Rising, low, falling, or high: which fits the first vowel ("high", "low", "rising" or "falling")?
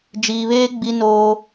low